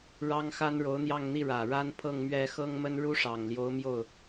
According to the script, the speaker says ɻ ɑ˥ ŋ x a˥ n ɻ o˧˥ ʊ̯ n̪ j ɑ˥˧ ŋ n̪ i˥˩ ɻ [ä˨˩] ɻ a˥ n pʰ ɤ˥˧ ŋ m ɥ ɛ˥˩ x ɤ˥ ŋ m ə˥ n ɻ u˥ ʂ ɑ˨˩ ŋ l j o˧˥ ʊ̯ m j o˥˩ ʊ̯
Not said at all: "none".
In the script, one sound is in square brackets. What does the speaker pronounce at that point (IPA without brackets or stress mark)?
ä˨˩